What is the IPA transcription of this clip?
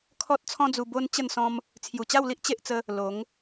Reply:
kʰɔ˦t̚t͡sʰɔ̃˦d͡zu˧ bo˦n t͡ɕə˥˧nsɔ̃˦m | t͡sʰju˨˩t͡ɕa˥˧wli˦ʔ t͡ɕe˦ʔt͡sə˦ | lo˨˦ŋ

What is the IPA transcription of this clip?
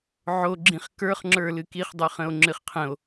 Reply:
ʕo ɡ͡ǁĩχkə˞χŋ͡ǁə˞lɨ kiχdˤʉχə̃o̯ ŋ͡ǁɨχqʰə̃o̯

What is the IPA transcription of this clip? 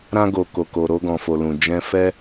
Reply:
ɾã˧ɡo˨ ko˨ko˨ ɾo˧ɡɔ̃˨fo˨lũ˨ d͡ʒɛ̃˧ fɛ˧

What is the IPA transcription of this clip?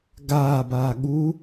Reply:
ɡaːbaː ɠu

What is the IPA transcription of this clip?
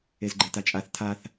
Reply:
ezɡ͡ǃetat͡ʃʼaθ tʰaθ

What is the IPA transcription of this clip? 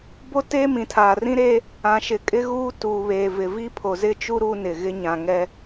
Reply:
bo˦teː˦ mĩ˨tʰaː˨rĩ˦ɾeː˦ | ã˨ʃɪ˨ kʼɪ˦ɣuː˦tuː˨βeː˨ vɪ˨vi˦pʰo˨ zɪ˦t͡ʃu˦ ɾu˦nɪ˨ ɣɪ˦ɲã˨ŋɛ˦

